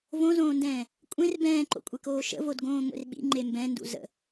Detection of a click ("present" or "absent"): present